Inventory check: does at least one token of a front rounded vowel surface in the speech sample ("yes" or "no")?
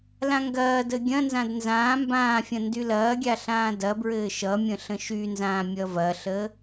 yes